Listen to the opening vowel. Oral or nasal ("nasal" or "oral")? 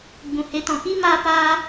nasal